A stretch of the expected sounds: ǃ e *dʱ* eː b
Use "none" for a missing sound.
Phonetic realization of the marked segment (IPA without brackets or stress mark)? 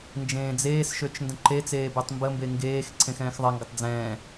t͡s